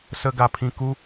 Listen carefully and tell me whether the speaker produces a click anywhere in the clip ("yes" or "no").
no